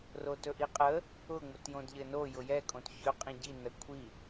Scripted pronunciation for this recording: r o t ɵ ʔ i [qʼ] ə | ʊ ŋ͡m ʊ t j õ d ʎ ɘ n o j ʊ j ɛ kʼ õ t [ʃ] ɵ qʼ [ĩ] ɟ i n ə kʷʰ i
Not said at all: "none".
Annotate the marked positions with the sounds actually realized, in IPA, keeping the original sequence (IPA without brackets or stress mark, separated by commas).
qʼ, ç, ĩ